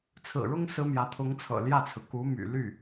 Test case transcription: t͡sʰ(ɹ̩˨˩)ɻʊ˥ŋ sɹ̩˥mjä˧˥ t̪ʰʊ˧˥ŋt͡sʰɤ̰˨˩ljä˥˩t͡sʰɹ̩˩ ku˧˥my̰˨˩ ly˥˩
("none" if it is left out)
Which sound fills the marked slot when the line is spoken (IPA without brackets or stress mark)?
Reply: ɹ̩˨˩